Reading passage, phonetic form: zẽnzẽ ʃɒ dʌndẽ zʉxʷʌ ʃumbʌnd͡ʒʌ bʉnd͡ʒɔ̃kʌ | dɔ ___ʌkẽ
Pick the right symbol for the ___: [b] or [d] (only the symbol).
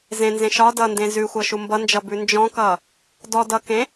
d